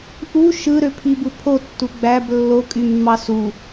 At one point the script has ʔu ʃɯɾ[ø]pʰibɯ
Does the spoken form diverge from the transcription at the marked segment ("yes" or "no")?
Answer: no